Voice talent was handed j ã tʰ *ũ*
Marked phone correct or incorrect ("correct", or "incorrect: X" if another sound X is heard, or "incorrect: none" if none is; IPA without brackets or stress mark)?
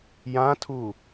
incorrect: u